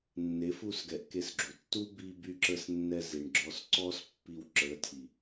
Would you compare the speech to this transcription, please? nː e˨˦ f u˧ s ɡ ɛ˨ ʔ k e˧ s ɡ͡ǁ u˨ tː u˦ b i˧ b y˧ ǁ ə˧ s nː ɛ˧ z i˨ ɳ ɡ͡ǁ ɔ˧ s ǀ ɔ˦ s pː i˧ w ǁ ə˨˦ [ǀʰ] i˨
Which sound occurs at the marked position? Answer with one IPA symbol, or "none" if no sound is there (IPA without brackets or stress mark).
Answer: tʰ